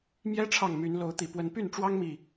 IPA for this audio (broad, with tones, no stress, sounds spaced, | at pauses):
m j ɛ˦ ʈ͡ʂʰ ɑ˥˨ ŋ m y˨˦ n l o˨˦ ʊ̯ t̪ i˨˩ p w ə˨˦ n p y˥˨ n ʈ͡ʂ w ɑ˦ ŋ m i˨˩